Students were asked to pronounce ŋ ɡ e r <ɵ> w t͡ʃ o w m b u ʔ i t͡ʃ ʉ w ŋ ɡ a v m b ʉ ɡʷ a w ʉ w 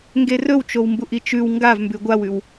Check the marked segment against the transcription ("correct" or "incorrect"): correct